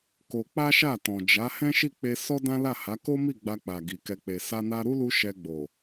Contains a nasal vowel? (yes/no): yes